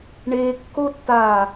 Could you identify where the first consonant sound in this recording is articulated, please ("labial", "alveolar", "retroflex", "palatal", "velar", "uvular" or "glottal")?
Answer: retroflex